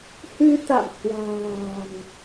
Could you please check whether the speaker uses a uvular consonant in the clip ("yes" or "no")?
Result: no